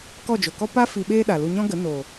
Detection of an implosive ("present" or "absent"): present